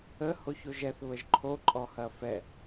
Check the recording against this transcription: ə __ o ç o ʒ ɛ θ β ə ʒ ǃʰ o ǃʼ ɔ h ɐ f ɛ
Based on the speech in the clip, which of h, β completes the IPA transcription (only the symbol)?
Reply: h